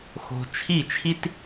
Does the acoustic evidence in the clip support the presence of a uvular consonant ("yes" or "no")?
no